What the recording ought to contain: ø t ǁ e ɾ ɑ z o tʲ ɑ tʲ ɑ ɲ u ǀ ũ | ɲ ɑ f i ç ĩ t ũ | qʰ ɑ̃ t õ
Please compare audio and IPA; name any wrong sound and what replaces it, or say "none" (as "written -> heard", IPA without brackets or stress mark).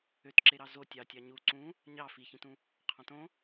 none